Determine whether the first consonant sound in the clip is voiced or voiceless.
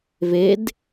voiced